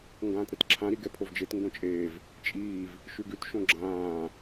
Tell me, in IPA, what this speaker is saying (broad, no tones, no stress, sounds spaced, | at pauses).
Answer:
ŋ ɡ ãː t ɾ ɛ t ǁʰ ã ɾ i ɡ ɛ pʰ o v d͡ʒ e t ŋ ɡ õ t͡ʃʼ eː v | t͡ʃʼ iː v | ʃ ʉ ɡ ʉ t ʃ õ ɡ͡ǁ ãː